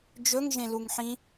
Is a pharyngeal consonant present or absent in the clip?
present